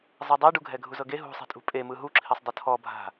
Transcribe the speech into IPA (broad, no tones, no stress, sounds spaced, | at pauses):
zˤ ɤ dˤ e ɖ u ɡʱ ɛ ɡʱ u z ɤ ɡ e ɦ ṳ sˤ i̤ tʼ ṳ pʼ e m ɯ ɦ u ǁʰ i sˤ dˤ ɯ tʰ ɔ bʱ a̤